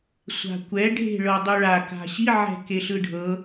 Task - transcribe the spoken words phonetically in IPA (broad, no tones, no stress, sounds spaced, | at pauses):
sʷ a̤ kʷ ɛ ɖʱ e̤ ɭ ɤ dˤ u ɭ a k a̤ ɕ i ʕ ɛ̤ k e ɬ ɯ ɖʱ ɤ